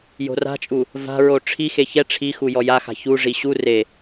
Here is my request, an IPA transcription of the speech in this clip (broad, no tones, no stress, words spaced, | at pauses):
jo̤ra̤t͡ʃʼu | va̤ɹo ʈ͡ʂʰixe çɛ ʈ͡ʂʰixu jɔjaxa̤ çuʐi ɕu re